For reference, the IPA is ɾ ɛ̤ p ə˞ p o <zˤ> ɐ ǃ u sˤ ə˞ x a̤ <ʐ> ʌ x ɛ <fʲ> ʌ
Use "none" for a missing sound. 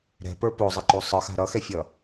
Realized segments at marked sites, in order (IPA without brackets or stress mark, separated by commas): zˤ, ɾ, fʲ